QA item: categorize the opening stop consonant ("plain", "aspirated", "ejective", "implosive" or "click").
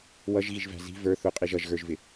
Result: ejective